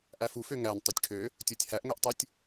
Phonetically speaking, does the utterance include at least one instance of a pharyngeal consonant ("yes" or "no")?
no